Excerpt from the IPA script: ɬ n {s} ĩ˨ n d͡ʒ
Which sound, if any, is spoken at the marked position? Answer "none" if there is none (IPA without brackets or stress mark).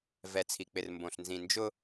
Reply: z